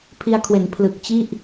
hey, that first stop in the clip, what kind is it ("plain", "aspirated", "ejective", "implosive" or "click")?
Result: aspirated